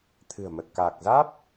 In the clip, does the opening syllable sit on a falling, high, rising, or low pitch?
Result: low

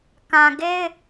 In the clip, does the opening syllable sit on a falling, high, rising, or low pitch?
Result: low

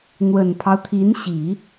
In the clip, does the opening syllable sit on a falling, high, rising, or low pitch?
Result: low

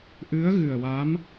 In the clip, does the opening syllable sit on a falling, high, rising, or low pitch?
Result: rising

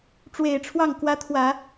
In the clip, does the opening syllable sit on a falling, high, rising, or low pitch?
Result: low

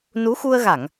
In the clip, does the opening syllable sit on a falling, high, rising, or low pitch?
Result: rising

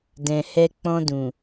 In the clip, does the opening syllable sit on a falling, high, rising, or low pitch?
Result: low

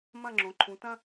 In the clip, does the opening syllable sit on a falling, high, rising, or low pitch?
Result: falling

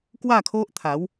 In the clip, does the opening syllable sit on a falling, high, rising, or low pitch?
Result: falling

